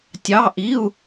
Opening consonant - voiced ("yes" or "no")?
no